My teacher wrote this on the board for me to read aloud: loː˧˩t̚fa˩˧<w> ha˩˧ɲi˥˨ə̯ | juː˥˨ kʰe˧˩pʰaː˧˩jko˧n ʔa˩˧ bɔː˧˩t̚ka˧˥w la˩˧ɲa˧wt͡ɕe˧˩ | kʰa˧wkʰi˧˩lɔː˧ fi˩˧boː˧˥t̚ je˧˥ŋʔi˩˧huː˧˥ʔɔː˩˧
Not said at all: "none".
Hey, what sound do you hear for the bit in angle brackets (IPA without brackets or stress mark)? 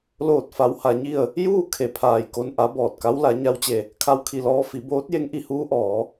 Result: w